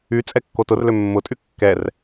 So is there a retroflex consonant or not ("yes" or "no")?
no